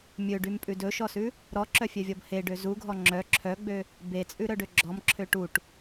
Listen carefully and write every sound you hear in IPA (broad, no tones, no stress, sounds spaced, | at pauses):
mʲ ɵ ɖ y m pʼ ʉ d ɵ ʃ ɔ s ʉ | ɾ ɔ ǁ œ fʲ œ vʲ ɔ b h e ɖ ø z u ɡʱ ɔ ŋ͡ǁ œ ǁʰ œ ɡ͡b ø | b e t͡sʼ ʉ ɾ œ ɖ ø ɡ͡ǁ ɔ m ǁʰ ø ʈ u ʈ